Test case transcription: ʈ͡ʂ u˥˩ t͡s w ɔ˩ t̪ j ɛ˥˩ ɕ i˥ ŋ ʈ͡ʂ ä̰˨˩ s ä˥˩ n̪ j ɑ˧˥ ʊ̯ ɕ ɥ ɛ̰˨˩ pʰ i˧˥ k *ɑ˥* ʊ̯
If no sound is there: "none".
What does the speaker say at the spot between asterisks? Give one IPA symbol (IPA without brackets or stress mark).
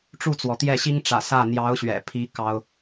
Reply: ɑ˥